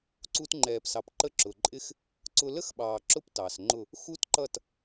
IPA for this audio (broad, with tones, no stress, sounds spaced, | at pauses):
ǀ u˧ t ŋ͡ǃ ɛː˨ p s ɑ˨ p ǃ ə˧ ǁ ʊ˨ ǃʼ ɪ˦ x | ǀ ʊ˧ l ə˦ x ɓ ɑː˨ ǁ ʊ˦ p t ɑ˨ s ŋ͡ǃ ʊ˦˨ | x u˦ t ǃ ʌ˦˨ t